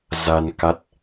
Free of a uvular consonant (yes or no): yes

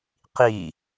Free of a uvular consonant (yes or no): no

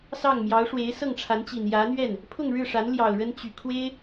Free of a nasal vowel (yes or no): yes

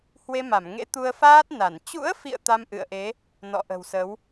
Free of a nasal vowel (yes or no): yes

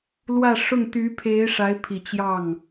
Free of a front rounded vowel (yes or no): no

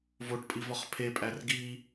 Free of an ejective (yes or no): no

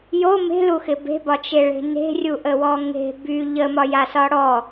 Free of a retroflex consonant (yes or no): no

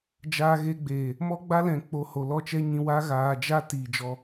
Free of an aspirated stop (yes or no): yes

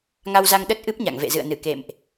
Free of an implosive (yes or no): no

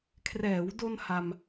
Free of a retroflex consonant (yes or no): yes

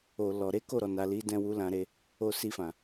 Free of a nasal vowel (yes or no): no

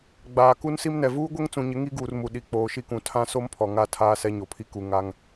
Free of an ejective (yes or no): yes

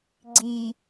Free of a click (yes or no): no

